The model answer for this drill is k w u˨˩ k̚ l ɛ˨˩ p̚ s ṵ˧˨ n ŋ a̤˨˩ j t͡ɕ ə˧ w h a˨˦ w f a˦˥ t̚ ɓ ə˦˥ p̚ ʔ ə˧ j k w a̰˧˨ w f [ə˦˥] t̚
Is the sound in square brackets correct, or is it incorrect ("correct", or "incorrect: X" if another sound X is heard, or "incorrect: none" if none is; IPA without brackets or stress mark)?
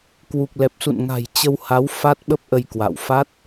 incorrect: a˦˥